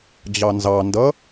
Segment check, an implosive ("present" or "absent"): absent